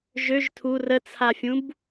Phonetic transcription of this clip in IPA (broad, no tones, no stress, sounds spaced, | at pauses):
ʒ ø ʒ tʰ u r ə t͡sʰ a fʲ ũ b